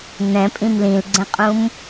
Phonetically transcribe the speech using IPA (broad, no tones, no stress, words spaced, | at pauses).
n̪ɛ̃pʼĩm lĩlɡ͡ǀɛ̃qʼũm